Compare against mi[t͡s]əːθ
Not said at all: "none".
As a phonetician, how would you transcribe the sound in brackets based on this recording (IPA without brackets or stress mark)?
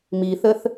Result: θ